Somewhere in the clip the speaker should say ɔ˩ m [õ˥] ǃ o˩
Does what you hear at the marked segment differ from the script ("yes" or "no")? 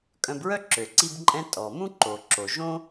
yes